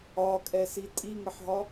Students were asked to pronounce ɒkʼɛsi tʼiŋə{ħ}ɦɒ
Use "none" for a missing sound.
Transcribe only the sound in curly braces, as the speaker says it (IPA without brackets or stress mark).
ħ